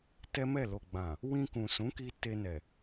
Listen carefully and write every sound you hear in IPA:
tɛ˦mɛ˦˨ lo˨ɡ͡bã˨ | wĩ˧kũ˨sũ˨˦ki˧ te˧nɛ˨

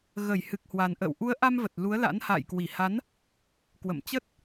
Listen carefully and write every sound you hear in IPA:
ɣə˧˩jhɨ˨˩k̚hwa˨˩nʔə̰ː˧˨w ʔu˨˦ə̯ʔa˧mvə˨˩t̚ lu˨˦ə̯la̰˧˥n ha̰ː˧˨jkwi˧˩ha˨˦n | kwə̰˧˨mt͡ɕə˦˥t̚

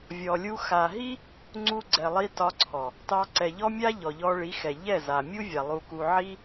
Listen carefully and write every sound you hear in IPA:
vʲɔ˨lʲu˧ xa˨ɦi˦ | ŋ͡ǀu˧ɡ͡ǀɛ˨lˠi˧ tɒ˧ǀʰɔ˨ | tɑ˧ǀɛ˨ʎɔ˦ mʲa˦ ʎɔ˨ʎɔ˧ɭi˨˦xɛ˨ ʎɛ˦˨za˨mʲu˦ vʲa˨lˠu˧ku˧ ʕi˦

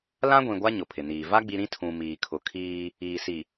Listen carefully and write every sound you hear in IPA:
lã˦ɡʷĩ˨ɡʷa˦ ɲʊ˨pʰɪ˨niː˨ va˦ ɡ͡bi˦ ɾĩ˦tʰũ˨ miː˨kʰʊ˨kʰiː˦ | iː˨ si˨

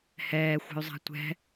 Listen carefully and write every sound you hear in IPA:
hɛːxʷɛ̤y̯zˤa̤ tʷɛ̤

